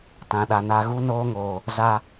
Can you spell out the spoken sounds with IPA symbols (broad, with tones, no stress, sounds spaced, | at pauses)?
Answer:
t ã˨ ɗ a˨ n a˨ ɣ u˦ n oː˦ ŋ oː˨ | z a˦